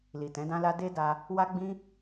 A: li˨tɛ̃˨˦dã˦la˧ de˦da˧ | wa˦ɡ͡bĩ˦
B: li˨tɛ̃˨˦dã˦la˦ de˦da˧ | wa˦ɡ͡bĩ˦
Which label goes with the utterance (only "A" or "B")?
B